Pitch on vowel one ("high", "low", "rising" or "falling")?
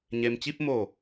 low